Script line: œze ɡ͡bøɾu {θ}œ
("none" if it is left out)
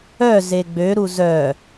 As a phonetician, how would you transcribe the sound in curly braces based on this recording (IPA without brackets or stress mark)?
z